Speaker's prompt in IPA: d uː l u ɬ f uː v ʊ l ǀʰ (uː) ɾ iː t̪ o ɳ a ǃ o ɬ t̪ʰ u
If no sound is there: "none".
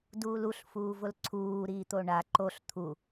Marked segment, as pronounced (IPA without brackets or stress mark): uː